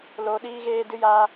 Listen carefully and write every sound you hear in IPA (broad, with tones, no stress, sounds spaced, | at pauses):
l oː˧ ɗ iː˦ ɣ eː˦ d ɨ˦ j aː˧